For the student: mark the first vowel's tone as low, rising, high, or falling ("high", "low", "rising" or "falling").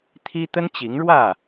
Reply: high